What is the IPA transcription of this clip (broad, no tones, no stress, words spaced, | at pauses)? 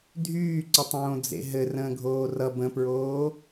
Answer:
dʱyːǀətˤõː d͡zḛɦɘ rə̃ːɡʱoːrʌ bə̃pɹoː